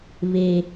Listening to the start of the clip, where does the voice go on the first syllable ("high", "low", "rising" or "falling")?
high